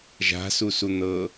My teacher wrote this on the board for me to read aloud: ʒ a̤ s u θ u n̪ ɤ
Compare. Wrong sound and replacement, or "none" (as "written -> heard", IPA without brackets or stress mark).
θ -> s